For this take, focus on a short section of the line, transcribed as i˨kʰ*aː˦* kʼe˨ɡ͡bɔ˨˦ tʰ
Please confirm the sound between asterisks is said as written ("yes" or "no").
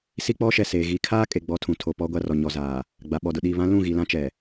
yes